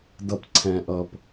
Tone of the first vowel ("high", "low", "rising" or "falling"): low